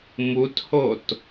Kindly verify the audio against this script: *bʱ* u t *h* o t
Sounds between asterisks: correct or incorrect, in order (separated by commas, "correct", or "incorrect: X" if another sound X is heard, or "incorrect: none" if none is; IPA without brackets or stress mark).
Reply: incorrect: m, correct